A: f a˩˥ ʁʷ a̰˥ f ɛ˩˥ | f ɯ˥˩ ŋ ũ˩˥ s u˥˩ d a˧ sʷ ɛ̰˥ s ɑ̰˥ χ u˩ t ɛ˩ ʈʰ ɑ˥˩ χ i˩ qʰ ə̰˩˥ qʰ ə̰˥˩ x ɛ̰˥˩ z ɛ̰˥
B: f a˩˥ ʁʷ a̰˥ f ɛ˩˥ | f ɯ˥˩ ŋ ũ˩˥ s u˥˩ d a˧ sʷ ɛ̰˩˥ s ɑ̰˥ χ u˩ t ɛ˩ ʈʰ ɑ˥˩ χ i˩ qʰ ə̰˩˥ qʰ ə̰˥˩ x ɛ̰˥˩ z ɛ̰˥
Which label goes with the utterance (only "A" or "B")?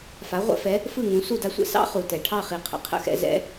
A